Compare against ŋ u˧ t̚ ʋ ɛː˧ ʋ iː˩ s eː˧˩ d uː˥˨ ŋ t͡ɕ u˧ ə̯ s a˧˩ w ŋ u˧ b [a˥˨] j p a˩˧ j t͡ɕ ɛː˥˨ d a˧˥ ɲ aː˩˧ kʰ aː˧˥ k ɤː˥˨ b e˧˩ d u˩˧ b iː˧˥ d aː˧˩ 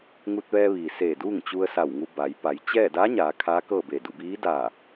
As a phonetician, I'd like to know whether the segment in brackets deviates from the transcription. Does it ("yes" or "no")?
yes